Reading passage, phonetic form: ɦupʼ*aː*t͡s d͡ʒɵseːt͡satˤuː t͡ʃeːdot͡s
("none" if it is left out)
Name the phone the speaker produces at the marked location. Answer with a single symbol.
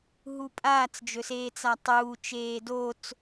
aː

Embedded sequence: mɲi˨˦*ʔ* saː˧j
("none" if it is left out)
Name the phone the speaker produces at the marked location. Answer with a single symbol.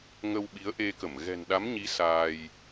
none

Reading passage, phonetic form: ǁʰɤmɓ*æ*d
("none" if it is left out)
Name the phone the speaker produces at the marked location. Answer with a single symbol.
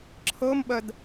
ɜ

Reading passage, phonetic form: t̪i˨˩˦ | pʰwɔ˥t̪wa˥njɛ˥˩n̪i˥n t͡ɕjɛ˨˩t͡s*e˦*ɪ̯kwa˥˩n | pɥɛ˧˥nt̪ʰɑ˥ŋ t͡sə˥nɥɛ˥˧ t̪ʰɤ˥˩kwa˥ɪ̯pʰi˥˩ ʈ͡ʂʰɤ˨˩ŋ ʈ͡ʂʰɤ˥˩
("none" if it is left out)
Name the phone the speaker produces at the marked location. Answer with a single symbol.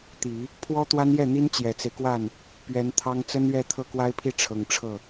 e˦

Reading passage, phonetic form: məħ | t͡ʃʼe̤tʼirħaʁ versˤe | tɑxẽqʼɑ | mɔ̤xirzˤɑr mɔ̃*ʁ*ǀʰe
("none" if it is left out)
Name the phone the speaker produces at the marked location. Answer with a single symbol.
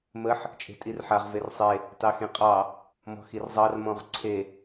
ʁ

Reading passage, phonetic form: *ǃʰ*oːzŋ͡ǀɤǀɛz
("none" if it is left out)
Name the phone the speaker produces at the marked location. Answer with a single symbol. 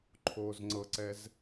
ǃʰ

